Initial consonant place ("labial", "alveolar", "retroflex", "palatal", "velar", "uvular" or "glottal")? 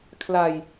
velar